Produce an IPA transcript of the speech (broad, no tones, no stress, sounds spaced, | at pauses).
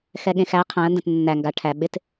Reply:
x ɛ ɠ ẽ x æ qʰ æ̃ ə̯ n d ə̃ t nː æ ŋ ɡ a ʈʰ æ ɓ ɪ t